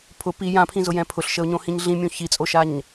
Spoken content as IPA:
pʰʊ pi jãpʰĩzʊjɛ̃ pʰʊɬʃəʊ̯ɲõhĩɲ ɮĩmʲõ çit͡sʼoʃaɲ

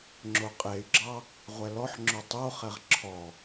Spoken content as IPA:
ŋ͡ǁoqʼey̯ɡ͡ǁɑ | ʁʷɛlɔħ ŋ͡ǁotˤoχɛʁ ǁʰɔ

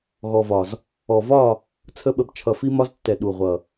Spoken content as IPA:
ɣɔ˨vɒ˨z | ɔ˨vɒ˦˨ | t͡sʰə˦ɓə˧b t͡ʃʰʌ˨fi˧mɒ˧ztːɛ˨ ɗu˨ʁʷʌ˨

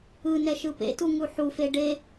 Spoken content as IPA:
ɯnɛʃɯ pḛtuŋu ħufe ɖe

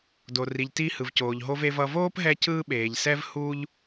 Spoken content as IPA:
do˩ri˩ʎ ti˧ hɯ˩vcoː˩ʎɦo˧v e˧vʌ˧ voː˥pɦɛ˧ cɯː˥ɓeː˩ʎsɛ˥v huː˥ʎ

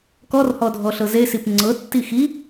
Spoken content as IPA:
kɔrhɔdʱɔɬɤ zesip ŋ͡ǀɤtːi xi

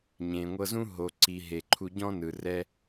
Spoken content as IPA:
ɲẽ˩ŋʷɤ˧zũ˥ ɦo˩ǀi˩ ɦe˩ǃʰu˧ɟɔ̃˥nɯ˩ rɛ˧

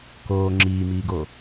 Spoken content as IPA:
koː ŋ͡ǁiːmiːɡo

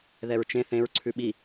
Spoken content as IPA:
ðɛɹt͡ʃẽ θẽɹ ǀʰʉɓi

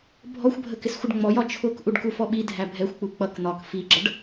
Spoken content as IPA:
bʱɔxʷbʱəkɪsxʷɪɖ ŋ͡mɔjɒ t͡ʃʰʊk ʔuɖkufɔɓi dʱæbʱɛxʷk͡pu k͡pʌk n̪ɒk fiɡ͡ǁʌɖ

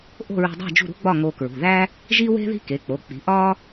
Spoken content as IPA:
ʔo̤˥˨ɹṳ˧dˤæ̤˥˨ d͡ʒṳ˥˨ɾṳ˥ɡ͡bɒ˥˨ ŋo˧kɹṳ˩˧˩ðæ˥ | ʒi˥we̤˥ði̤˥ ke˩˧˩k͡po˩˧˩k͡pi̤˩˥ ʔɒː˥

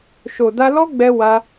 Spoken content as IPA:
ʃo˨da˧lɔ˦ɡ͡bɛ˧ wa˦

